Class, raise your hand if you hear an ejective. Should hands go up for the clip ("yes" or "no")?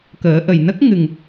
no